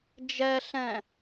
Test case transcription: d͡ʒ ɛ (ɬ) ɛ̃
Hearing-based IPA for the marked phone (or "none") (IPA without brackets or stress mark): ɬ